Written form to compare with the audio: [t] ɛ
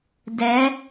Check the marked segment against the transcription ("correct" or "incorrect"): incorrect